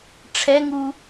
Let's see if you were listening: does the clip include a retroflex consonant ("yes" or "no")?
yes